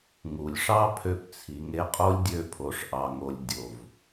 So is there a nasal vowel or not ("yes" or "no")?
no